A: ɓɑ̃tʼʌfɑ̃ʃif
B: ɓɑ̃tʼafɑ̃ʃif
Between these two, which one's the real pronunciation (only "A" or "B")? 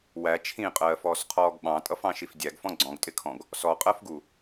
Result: A